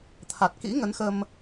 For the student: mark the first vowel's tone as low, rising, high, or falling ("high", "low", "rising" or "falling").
low